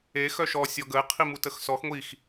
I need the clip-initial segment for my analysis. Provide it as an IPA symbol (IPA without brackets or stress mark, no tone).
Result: e